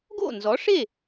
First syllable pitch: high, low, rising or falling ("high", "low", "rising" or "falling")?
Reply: falling